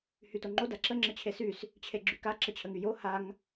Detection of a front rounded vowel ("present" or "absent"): present